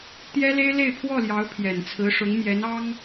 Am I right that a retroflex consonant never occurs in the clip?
no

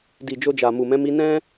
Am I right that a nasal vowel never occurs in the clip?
no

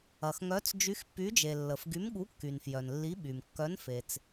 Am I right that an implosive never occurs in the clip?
no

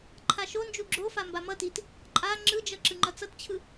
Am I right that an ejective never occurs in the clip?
no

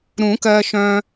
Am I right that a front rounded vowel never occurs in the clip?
no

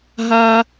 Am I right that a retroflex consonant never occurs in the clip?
yes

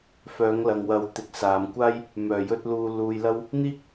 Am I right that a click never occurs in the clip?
yes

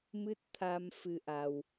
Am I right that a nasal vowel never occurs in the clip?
yes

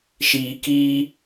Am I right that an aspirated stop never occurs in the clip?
yes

